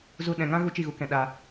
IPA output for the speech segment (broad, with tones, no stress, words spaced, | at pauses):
zu˧ ɗɛ̃˨ŋã˦ ɣu˦t͡ʃi˦˨ɣu˧kɛ̃˨ ɗa˨